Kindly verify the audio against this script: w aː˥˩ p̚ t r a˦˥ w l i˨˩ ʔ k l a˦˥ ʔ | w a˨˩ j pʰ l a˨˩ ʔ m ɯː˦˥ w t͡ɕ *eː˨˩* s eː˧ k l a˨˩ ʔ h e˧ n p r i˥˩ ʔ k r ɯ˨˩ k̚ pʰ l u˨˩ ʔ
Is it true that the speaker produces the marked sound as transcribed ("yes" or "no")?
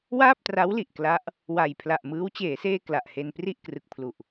no